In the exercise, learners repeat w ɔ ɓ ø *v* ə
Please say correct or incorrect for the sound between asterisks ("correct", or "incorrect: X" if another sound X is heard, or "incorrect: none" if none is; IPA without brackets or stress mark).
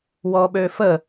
incorrect: f